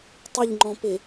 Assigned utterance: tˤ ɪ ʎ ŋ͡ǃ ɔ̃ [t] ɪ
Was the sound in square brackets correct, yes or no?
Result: no